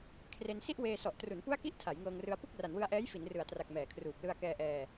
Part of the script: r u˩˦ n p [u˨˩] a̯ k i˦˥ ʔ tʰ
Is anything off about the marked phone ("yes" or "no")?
yes